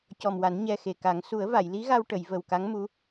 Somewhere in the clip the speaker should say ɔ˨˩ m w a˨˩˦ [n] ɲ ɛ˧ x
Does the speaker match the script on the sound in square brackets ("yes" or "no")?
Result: yes